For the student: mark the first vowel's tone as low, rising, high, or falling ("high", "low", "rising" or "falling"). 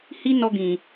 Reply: high